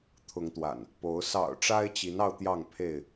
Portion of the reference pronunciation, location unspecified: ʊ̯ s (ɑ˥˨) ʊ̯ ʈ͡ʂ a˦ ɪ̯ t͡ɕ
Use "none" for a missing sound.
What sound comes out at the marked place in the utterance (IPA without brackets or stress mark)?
ɑ̰˨˩